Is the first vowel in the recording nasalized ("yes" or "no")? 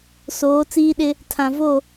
no